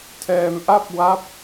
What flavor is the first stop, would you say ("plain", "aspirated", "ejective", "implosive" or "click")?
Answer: aspirated